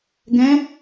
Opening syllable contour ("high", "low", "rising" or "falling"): rising